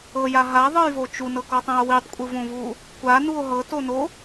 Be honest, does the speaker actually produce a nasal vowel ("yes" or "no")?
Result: yes